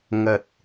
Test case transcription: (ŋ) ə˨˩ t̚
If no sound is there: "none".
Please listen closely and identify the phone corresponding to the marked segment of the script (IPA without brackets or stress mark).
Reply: ŋ